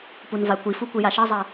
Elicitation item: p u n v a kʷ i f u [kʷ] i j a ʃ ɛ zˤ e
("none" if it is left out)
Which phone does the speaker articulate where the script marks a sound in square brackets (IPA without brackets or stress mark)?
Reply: kʷ